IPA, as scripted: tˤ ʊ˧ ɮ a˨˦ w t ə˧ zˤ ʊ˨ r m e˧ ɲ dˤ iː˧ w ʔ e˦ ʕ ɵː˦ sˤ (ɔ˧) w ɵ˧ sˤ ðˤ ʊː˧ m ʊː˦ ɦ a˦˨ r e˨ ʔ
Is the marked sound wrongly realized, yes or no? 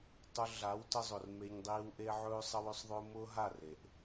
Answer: yes